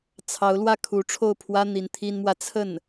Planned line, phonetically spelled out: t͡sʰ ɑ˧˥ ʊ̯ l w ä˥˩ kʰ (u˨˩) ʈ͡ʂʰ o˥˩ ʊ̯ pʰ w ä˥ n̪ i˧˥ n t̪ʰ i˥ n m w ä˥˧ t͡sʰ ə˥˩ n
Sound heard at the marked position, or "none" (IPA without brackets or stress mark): u˧˥